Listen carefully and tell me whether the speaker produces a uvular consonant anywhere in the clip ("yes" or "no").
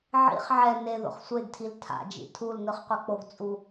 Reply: yes